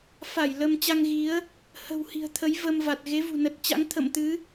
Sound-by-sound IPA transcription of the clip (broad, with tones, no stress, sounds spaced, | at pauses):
f a˧˩ j l ə˧ m t͡ɕ a˧ ŋ ɣ i˨˦ ə̯ | h ə̤˨˩ w h i̤˨˩ ə̯ t̪ʰ ə˨˦ j v ə˧ m v a˨˩ t̚ ɣ e˨˦ v ṳ˨˩ n ə˨˩ t̚ t͡ɕ a̰˧˥ ŋ t̪ʰ ə̰˧˨ m t̪ ɨ˨˦